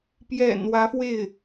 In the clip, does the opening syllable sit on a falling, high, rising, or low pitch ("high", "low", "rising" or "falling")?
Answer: low